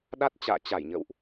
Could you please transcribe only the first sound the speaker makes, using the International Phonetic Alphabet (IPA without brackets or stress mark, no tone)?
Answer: ɗ